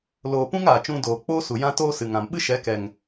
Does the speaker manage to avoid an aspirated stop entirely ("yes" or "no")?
yes